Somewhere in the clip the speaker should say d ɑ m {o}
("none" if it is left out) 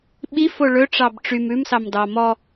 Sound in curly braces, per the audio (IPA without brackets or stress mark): ɔ